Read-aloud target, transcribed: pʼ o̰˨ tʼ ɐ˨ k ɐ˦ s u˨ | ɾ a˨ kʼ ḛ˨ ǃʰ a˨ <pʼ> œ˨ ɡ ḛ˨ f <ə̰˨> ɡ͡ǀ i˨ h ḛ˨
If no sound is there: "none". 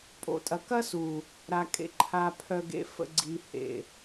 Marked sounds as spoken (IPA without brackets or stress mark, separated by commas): pʰ, ə̰˨